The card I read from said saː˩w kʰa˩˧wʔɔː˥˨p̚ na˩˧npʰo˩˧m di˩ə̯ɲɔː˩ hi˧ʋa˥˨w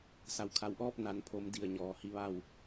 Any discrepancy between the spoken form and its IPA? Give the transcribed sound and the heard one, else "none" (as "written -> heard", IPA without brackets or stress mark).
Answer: aː˩ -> a˩